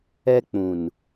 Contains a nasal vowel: yes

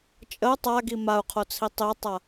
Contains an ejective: yes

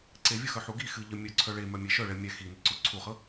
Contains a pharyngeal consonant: yes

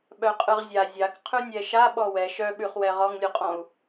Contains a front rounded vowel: yes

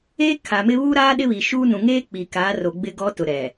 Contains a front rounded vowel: no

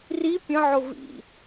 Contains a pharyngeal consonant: yes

